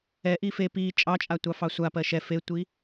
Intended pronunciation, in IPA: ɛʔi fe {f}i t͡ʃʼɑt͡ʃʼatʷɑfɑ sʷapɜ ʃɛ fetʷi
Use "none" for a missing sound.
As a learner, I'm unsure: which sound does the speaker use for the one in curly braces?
p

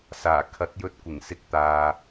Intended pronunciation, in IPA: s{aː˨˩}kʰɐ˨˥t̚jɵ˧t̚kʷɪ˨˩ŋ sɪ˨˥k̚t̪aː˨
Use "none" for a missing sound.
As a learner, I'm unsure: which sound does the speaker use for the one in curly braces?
aː˨˩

